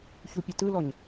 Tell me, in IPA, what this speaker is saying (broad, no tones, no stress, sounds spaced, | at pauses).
ç u pʲ ɘ t ɯ l ɔ ɲ